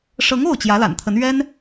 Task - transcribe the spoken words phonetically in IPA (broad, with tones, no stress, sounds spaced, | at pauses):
ʂ ɤ˧˥ ŋ o˥˩ ʊ̯ t͡ɕ j ä˧˥ l a̰˨˩ n t̪ʰ ə˧˥ n ɥ ɛ˥ n